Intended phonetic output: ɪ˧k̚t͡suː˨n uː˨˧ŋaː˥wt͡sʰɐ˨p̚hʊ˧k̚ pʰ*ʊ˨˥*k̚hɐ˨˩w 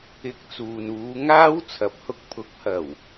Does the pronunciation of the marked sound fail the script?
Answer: no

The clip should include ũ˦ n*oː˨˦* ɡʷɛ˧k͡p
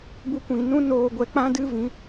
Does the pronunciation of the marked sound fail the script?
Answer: yes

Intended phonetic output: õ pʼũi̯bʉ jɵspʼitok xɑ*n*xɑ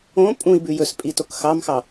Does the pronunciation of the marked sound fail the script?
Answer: yes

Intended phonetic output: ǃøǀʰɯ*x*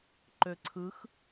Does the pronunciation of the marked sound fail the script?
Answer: no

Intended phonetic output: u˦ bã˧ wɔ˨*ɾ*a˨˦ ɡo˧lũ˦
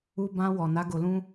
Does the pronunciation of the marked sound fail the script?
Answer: yes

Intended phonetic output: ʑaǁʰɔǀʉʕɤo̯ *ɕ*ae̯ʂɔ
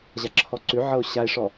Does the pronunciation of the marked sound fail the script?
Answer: no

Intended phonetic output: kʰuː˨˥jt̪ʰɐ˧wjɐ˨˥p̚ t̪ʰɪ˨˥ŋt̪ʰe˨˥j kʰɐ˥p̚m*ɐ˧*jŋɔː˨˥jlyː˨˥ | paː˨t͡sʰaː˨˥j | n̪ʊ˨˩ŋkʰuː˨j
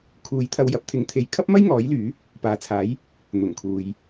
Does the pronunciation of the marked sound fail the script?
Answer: yes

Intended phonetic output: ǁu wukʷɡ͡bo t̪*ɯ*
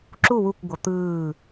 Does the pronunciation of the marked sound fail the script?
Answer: yes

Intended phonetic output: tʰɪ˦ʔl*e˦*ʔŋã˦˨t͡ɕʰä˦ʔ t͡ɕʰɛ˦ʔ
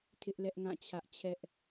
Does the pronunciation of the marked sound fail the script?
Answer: yes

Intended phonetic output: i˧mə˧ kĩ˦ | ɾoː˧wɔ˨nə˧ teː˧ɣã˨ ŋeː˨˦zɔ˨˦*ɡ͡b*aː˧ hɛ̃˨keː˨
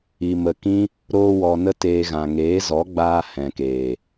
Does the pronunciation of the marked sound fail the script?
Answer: no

